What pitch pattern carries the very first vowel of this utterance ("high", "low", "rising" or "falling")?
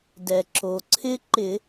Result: low